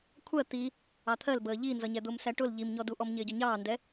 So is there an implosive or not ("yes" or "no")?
no